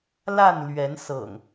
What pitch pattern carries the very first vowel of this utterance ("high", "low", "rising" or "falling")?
falling